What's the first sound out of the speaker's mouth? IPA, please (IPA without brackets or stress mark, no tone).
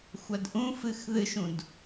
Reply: xʷ